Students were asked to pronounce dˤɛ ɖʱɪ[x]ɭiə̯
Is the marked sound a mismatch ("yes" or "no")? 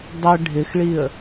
no